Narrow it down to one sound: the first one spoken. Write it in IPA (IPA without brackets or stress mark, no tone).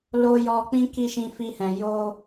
l